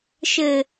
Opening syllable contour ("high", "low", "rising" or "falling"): low